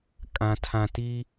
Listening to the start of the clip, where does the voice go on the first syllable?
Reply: low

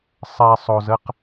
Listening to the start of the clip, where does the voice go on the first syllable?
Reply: low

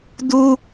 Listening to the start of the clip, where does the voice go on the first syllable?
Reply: high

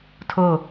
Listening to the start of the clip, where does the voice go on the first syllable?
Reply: falling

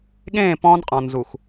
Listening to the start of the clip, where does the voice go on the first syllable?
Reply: falling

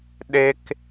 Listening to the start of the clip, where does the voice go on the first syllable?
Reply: high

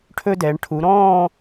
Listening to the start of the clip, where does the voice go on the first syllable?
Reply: high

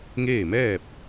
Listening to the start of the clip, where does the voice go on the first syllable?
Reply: falling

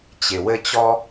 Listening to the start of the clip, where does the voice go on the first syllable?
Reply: low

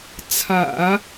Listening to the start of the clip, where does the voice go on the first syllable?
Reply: low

